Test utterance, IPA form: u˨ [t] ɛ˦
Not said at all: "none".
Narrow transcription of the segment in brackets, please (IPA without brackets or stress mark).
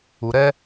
ɾ